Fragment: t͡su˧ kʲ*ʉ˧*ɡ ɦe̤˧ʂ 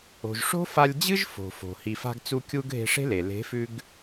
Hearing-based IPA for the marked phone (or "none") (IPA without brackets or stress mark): u˧